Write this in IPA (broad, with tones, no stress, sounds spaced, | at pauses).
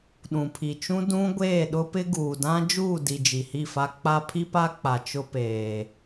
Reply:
ɗ ũ˨ pʰ i˨ t͡ʃ ũ˦ d ũ˦ ɡʷ eː˦˨ ɗ ʊ˦ p ɪ˦ ɡ uː˨ d ã˦ d͡ʒ uː˦˨ d i˨ d͡ʒ i˨ h i˦˨ f a˦ k͡p a˦ pʰ i˦ p a˦ k͡p a˨ t͡ʃ ʊ˦ p eː˨